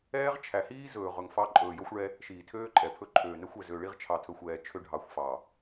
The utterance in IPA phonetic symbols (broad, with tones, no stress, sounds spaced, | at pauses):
ɛː˦ ʁ t͡ʃʰ æ˨ h iː˦ z ɵː˨ ʁ ɵ˨ ŋ f ɑ˦ ǃʼ ɵː˨ j o˦ xʷ ɭ ɛ˦ | ʃ iː˨ tʰ øː˦ ǃʼ ɛ˨ pʰ ɵ˦ ǃʰ øː˨ n ɛ˦ xʷ ɛ˨ z ø˨ ɭ i˦ ʁ t͡ʃʰ ɑ˨ tʰ ɵ˨ xʷ ɛː˨ t͡ʃʰ ø˦ ɖʱ ɑ˨˦ xʷ f ɑ˨